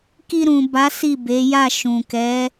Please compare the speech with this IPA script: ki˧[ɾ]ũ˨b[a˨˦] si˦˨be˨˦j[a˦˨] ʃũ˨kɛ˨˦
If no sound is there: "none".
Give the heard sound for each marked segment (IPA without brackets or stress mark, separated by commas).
ɾ, a˨˦, a˦˨